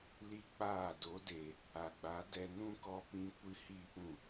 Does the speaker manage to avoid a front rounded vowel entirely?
yes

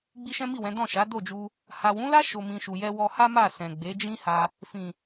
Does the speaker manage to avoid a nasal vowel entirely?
no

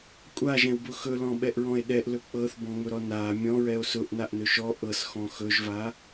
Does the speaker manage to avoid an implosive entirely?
no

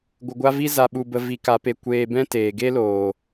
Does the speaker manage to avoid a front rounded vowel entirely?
yes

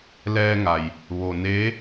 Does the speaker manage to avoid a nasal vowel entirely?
yes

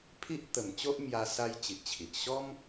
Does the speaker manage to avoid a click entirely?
yes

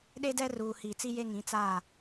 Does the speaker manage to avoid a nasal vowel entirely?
no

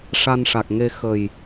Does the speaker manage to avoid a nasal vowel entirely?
yes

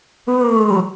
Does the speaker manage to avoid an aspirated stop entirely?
yes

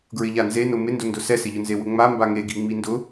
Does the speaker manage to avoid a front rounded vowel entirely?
yes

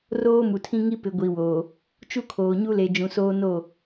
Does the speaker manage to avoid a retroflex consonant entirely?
yes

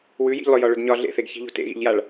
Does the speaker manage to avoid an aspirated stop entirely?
yes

